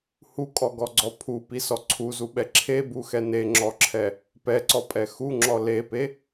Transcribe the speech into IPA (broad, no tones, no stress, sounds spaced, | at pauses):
h u kʼ ɔ ɡ ɔ ɡ͡ǀ ɔ pʰ u p i s ɔ ǀʰ u z u ɓ ɛ ǁʰ e b u x ɛ n e ŋ͡ǁ ɔ ǁʰ ɛ | p ɛ ǀ ɔ pʼ ɛ x u ŋ͡ǁ ɔ l e p e